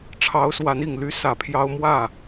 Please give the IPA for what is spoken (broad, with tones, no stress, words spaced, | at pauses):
ʈ͡ʂʰɑ˧˥ʊ̯swa˧˥ni˨˩ŋ ly˥sä˨˩pʰjɑ˥ʊ̯ mwä˥˩